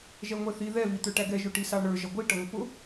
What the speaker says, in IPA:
ʒɛŋʷɛθi ðɛ vit̪ə˞ʈæɡɛ ʒʊʈisɑɳə˞ ʒʌɡʷi ʈʌŋʷəpʊ

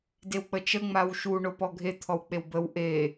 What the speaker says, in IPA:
dewk͡pət͡ʃə ŋ͡mawʃu ɳopɔɡʱe t̪ʰɔwk͡pewbəw ʔe

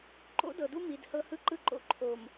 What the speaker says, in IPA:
ǃo̰˦dɤ˨du˦ mi˨d hɤ˦hɯ˦ǃɯ˦ǃo̰˦ ǃʰo˨m

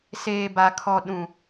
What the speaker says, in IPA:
seː˨ba˨ kʰɔ˨ɗũ˨

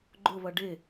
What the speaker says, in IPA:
ɡ͡ǃʊβʌ ɖɪ

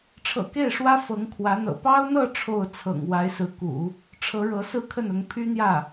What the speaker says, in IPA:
ʈ͡ʂʰɤ̰˨˩ke˥˩ɪ̯ʂwä˥ fɤ˧˥ŋkʰwä˧˥n̪ɤ̰˨˩ pɑ˥ʊ̯n̪ɤ˥˧ ʈ͡ʂʰo˥˩ʊ̯t͡sʰɤ̰˨˩ŋ wa˧˥ɪ̯sɹ̩˧˥kṵ˨˩˦ | ʈ͡ʂʰɤ˧˥ɻɤ˧˥ sɹ̩˥˧kʰə˥˩nʊ˧˥ŋ pʰy˥n̪jä˥˩

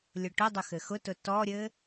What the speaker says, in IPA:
lʲʊʈʊdˤʊ xɘxʊtʊ tɔɾʲɘ

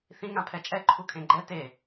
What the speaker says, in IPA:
θĩ ŋãpʰɛt͡ʃʼɛ ǃʰukʰẽɡ͡ǃɛ te

